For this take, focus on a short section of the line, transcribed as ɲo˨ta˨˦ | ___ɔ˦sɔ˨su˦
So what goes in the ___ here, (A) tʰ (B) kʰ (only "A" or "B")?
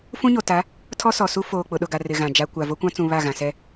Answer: A